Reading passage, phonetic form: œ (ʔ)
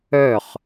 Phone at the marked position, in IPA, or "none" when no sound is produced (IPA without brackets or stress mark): χ